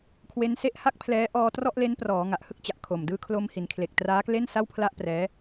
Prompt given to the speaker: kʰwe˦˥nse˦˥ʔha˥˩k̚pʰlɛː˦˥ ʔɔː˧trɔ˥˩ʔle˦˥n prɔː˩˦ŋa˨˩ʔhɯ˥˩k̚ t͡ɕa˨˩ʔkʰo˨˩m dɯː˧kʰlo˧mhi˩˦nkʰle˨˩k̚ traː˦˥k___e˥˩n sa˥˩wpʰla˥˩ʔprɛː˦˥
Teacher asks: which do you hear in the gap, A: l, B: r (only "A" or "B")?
A